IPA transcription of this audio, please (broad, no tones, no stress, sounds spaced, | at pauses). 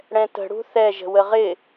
ɽ ɛ̃ t ə̤ ɽ ṳ θ ɛ ʒ ə̤ w ə ʁ ɪ